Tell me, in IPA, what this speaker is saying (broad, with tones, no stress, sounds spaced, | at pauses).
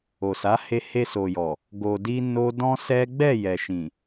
o˨ s a˨˦ h e˧ h e˧ s o˨ j ɔ˨ | ɡ o˧ d i˦ n o˦ d ɔ̃˦ s ɛ˦ ɡ͡b ɛ˦˨ j ɛ˨ ʃ ĩ˨